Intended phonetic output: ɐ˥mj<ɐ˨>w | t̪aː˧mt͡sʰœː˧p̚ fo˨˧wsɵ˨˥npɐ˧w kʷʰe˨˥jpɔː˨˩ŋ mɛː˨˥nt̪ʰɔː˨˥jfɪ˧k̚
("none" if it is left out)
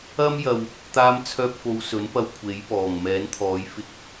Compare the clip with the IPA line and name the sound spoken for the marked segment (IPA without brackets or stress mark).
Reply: ɐ˨